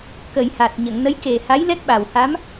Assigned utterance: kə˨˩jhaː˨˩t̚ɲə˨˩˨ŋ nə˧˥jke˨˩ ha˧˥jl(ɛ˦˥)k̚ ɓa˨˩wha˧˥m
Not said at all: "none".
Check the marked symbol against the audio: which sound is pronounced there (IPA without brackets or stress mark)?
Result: ɛ˦˥